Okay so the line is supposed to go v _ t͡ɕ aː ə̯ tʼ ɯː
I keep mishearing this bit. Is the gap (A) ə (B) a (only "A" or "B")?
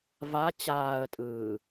B